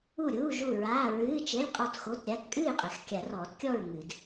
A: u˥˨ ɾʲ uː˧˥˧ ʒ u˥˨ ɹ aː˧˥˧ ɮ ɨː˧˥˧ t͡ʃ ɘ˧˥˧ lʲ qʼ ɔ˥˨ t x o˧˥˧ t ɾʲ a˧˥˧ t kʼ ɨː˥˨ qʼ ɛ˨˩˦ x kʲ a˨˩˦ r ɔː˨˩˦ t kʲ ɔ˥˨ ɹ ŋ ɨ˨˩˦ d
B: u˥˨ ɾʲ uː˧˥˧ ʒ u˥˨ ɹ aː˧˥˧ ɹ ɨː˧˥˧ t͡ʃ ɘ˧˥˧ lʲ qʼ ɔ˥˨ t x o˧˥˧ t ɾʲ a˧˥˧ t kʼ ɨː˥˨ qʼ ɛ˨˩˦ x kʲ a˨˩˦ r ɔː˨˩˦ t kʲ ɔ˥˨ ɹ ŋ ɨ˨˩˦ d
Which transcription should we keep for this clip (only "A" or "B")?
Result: B